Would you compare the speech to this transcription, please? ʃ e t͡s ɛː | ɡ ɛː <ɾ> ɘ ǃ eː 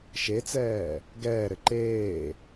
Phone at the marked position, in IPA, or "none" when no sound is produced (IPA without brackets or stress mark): ɾ